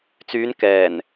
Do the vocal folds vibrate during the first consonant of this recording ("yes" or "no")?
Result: no